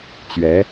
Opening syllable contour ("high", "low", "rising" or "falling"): rising